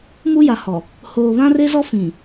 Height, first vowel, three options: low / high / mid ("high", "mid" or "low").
high